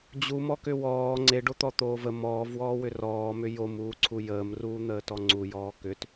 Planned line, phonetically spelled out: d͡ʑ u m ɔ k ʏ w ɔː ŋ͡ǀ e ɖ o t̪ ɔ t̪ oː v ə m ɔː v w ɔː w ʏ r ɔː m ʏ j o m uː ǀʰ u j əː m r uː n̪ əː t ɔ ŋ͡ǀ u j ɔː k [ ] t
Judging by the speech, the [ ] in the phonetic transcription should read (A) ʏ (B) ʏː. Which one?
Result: A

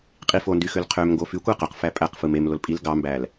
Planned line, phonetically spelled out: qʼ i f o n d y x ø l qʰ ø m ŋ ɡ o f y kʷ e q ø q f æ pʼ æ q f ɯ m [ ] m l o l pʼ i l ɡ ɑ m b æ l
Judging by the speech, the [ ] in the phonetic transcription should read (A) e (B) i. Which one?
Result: A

